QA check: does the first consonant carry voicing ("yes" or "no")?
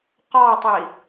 no